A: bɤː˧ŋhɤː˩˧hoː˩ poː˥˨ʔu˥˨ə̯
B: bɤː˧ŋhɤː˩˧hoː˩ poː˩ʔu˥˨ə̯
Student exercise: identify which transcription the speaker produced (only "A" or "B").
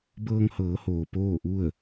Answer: A